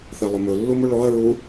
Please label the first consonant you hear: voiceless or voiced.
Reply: voiceless